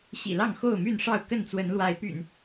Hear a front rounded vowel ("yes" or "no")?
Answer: yes